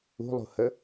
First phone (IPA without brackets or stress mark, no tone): ṳ